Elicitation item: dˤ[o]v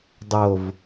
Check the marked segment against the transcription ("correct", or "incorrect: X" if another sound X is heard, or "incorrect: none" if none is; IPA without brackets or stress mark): correct